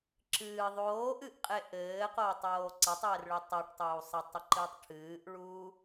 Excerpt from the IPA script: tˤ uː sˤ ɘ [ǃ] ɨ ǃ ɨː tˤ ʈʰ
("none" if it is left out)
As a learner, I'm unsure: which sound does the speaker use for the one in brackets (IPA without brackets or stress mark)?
tˤ